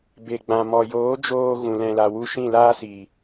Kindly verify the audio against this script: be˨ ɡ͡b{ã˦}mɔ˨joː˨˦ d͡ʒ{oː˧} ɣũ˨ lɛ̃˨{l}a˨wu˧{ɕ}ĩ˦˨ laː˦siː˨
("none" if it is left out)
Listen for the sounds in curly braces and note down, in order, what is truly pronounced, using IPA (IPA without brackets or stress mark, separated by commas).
ã˨, oː˧, l, ʃ